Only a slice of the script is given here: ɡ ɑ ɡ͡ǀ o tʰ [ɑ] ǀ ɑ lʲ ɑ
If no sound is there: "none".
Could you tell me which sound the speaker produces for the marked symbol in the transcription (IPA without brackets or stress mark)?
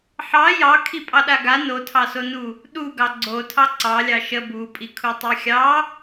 ɑ